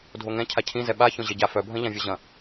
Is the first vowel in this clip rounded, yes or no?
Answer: yes